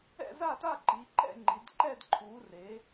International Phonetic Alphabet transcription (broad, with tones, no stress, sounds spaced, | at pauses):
ɛ̰˦˨ z a˦˨ t a˦˨ ǃ i˩˧ ǃ ɛ̰˦˨ ŋ͡ǃ i˩˧ d ǃ ɛ˦˨ d ǃʰ u˩˧ r e˩˧